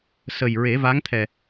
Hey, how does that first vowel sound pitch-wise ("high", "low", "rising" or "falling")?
low